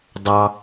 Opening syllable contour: high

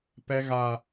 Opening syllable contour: high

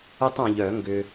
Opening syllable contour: high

